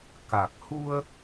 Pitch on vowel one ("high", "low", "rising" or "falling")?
low